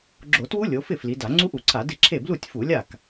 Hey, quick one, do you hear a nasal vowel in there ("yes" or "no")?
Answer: no